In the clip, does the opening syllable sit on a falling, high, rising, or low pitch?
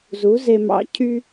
rising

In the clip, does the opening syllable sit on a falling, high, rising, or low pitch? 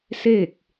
falling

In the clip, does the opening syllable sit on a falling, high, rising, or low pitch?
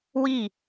falling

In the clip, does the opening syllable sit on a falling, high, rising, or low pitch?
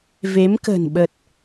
rising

